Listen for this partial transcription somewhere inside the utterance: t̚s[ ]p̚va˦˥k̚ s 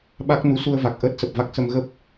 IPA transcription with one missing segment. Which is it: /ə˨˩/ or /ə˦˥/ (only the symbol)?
ə˨˩